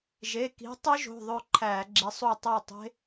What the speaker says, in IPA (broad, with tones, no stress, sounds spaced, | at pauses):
ʒ e˩˧˩ k i̤˨˦ tˤ ø˦˥ ʒ o̤˩˧˩ ðˤ ø˥˨ ǃʰ æ˧˩˧ ɡ͡ǁ i˨˦ sˤ u˥˨ tˤ æ˥˨ tˤ e̤˦˥